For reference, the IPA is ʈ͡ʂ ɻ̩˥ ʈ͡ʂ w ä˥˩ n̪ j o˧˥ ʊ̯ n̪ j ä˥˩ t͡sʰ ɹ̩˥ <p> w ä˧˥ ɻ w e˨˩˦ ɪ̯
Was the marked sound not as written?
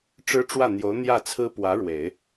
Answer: no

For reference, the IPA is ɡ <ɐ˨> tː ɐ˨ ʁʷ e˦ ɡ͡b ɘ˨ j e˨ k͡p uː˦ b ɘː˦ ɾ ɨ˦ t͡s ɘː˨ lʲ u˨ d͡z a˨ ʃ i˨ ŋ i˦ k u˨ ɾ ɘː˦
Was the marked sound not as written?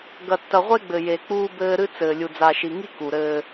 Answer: no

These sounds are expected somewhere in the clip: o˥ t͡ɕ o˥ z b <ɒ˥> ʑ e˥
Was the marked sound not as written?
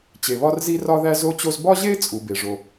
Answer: no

